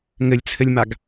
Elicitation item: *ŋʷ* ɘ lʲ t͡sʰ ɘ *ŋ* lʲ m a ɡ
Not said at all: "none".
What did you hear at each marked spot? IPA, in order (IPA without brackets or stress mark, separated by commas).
ŋ, none